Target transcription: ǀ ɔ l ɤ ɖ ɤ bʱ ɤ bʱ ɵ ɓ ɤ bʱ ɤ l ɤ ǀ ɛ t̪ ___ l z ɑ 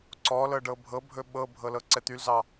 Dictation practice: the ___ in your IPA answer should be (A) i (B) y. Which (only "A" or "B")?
B